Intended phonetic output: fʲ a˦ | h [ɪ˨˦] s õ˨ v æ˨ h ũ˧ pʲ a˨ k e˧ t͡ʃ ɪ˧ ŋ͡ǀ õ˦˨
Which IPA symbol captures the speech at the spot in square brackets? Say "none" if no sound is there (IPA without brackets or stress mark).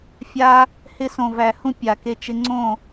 ɪ˧